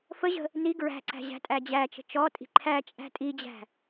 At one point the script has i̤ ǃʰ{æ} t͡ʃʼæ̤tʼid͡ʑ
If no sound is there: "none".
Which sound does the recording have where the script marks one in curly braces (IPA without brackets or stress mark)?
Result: æ